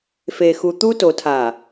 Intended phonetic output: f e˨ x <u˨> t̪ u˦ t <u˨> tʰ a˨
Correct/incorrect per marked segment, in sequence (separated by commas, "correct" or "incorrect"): correct, incorrect